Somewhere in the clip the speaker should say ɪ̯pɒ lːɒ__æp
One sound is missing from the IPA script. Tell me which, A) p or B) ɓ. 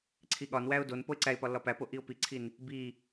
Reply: A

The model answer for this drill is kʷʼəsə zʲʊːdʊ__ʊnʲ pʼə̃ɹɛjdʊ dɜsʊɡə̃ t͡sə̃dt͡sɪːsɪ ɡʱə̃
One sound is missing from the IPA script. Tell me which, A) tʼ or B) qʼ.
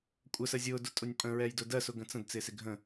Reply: A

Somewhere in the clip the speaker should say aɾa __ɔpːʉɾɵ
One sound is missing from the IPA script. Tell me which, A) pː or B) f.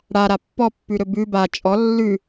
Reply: A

